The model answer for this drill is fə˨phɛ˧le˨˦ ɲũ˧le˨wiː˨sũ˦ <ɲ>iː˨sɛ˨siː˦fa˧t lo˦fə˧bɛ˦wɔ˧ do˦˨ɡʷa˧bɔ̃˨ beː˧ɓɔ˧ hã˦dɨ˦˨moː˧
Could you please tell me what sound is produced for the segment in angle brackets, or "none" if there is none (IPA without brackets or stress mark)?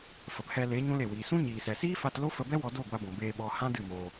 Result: ɲ